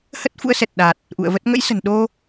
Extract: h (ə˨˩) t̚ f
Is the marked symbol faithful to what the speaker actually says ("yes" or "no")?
no